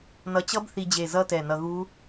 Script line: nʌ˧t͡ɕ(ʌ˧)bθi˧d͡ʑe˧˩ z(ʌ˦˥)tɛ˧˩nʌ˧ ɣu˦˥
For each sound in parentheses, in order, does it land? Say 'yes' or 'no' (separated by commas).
no, yes